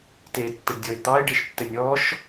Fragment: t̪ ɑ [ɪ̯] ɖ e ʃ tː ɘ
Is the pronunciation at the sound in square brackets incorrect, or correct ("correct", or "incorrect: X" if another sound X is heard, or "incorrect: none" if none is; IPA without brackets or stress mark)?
correct